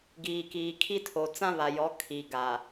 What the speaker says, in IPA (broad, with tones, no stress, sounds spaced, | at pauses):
ɡ iː˨ k iː˨ kʰ i˦ tʰ o˨ t͡s ã˦ β a˨ j ɔ˨˦ kʰ i˨ ɡ a˨